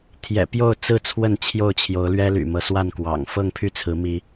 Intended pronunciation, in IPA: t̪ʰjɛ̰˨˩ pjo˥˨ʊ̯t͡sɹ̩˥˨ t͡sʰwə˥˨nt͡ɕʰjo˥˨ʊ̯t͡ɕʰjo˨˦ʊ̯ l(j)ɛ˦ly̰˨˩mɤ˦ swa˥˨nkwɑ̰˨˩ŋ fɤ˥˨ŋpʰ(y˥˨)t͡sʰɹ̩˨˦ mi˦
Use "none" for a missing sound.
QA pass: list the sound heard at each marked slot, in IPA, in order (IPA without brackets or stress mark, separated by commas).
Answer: ɥ, y˥˨